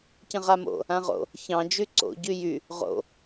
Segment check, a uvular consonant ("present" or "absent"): present